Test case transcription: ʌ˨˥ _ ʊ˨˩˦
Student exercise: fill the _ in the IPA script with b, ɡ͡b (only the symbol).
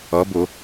b